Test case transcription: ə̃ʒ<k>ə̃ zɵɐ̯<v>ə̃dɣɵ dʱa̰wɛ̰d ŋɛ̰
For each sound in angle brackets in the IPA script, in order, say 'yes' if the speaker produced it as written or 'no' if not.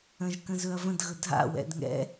yes, yes

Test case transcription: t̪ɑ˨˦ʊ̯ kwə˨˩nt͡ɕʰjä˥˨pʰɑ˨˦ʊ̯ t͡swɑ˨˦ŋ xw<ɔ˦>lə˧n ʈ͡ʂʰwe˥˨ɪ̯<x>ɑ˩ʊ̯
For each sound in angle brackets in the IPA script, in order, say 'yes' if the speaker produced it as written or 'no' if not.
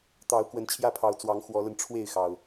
no, yes

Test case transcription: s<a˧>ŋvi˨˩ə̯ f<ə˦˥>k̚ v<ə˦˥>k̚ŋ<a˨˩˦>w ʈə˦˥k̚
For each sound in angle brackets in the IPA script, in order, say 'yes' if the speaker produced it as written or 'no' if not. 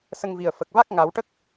no, no, no, yes

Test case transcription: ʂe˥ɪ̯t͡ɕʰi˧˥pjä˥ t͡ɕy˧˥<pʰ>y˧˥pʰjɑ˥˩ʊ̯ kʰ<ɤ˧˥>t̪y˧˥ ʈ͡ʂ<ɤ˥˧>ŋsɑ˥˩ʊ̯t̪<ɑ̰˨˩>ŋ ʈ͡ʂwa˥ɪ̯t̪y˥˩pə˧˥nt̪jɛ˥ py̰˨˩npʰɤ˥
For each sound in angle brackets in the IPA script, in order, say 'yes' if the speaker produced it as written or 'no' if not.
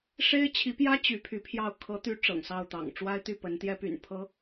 yes, yes, no, yes

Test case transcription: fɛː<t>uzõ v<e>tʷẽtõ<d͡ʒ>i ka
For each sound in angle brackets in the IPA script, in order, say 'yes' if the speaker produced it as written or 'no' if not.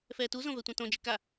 yes, no, yes

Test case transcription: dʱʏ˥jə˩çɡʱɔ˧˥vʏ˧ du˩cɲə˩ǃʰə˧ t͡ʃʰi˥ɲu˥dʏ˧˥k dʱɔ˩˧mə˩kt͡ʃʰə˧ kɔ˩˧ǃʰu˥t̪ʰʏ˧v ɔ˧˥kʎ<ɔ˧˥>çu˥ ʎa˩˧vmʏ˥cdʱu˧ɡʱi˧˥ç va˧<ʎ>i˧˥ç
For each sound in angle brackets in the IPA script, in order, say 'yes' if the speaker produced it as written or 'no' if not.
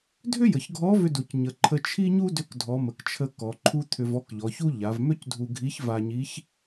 no, no

